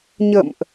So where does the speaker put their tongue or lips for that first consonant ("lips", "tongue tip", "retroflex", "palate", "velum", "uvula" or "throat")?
palate